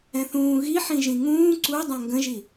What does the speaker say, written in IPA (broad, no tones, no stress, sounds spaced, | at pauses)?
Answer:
ɛ̃ θ ũː ɣ i ħ ĩ ʒ ĩ ŋ ũː ǀ u dˤ ɛ̃ ŋ ɡ ə̃ ʒ i